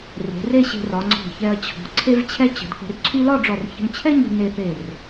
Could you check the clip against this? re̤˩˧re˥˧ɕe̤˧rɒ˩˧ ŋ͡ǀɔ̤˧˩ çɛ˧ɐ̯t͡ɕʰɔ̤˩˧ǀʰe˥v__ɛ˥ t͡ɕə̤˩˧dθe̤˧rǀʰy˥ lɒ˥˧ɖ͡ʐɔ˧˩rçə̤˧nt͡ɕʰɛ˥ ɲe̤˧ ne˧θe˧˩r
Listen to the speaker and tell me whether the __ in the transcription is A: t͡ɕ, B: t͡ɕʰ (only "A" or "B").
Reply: B